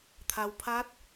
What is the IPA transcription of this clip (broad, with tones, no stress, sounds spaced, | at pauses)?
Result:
t̪ʰ a˩ w pʰ a˧˥ t̚